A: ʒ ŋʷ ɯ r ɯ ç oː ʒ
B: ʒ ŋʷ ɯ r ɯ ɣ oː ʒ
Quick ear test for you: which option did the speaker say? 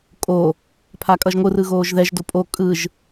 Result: B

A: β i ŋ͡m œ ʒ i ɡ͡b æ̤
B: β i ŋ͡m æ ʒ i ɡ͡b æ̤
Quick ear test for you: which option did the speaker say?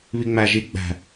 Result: B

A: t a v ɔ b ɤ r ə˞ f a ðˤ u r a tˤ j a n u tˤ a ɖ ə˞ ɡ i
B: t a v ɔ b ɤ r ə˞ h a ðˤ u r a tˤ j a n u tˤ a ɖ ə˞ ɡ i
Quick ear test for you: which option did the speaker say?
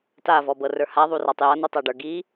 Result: B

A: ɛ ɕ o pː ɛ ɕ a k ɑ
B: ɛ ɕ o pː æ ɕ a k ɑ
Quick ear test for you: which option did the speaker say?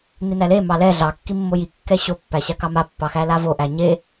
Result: B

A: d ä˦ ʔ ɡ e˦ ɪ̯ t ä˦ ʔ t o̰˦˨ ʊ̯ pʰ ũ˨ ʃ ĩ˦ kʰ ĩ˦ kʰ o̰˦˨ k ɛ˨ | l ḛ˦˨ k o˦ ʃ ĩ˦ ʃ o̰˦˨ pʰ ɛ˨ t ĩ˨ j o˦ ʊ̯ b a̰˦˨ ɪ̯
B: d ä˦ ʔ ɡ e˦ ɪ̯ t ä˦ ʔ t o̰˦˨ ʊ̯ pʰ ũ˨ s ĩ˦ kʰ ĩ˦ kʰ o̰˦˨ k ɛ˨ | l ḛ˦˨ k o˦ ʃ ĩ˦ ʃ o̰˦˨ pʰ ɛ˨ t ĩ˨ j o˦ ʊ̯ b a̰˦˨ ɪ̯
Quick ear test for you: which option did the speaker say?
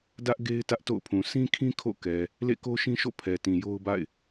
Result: B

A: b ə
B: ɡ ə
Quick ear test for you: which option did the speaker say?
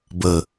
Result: A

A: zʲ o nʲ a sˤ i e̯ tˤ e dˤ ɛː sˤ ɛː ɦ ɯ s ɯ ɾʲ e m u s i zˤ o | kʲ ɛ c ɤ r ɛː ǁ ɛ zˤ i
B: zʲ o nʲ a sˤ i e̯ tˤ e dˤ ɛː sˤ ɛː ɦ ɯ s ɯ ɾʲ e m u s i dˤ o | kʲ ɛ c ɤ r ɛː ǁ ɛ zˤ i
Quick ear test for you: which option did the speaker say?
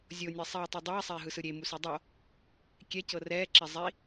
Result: B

